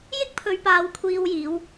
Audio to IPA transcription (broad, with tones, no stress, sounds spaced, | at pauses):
j ɪ˥ k̚ pʰ ɵ˨˧ ɥ p aː˨˧ w kʷʰ iː˧ w j iː˨˧ w